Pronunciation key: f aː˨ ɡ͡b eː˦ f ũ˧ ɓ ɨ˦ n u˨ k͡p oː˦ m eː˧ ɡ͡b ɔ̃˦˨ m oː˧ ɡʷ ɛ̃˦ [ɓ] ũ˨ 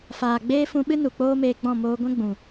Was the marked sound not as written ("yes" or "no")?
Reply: yes